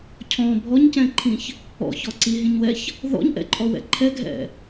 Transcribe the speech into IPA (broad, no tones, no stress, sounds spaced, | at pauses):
cʰ ɔ̃ bʱ ɔ ɲ c ɛ̃ ǃʰ ĩ ç | ɔ̰ ç ɔ ǀ i ɦ ĩ ɲ w ɛ ç | ð ɔ̰ ɲ ʔ ɛ̰ ǃʼ ɔ w ɛ̰ ǃʰ ɛ ɡʱ ɛ̰